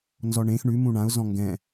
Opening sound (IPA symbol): n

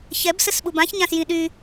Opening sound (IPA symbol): ç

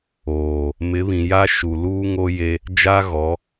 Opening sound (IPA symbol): oː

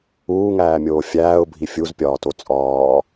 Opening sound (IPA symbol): uː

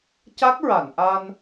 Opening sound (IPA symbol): c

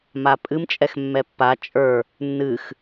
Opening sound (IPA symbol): m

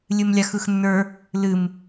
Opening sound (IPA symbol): lʲ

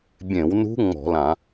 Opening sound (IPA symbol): bʲ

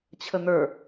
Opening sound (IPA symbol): t͡ɕʰ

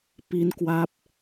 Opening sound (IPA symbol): p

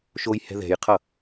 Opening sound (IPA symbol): ʃ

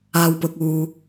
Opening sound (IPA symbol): aː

